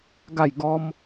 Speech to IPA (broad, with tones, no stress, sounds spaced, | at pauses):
ɡ a˥˧ j ɡ ɔ˦ m